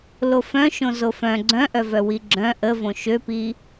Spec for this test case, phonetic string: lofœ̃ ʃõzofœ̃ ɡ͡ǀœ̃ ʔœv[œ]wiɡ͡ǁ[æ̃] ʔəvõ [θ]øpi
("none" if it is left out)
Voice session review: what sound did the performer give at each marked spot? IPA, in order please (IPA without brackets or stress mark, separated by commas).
œ, œ̃, ʃ